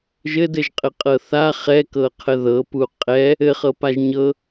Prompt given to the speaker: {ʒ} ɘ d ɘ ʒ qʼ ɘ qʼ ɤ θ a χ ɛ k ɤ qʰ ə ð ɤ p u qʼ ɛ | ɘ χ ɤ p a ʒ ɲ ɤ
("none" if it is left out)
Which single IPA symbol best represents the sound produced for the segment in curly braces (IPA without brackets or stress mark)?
ʒ